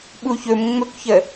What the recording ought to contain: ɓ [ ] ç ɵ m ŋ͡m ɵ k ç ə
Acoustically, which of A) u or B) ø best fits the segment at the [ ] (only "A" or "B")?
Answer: A